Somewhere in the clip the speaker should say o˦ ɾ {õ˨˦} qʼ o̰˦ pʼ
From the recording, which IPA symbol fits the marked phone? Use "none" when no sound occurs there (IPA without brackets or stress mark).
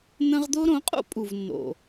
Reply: õ˨˦